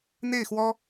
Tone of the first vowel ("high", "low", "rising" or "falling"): falling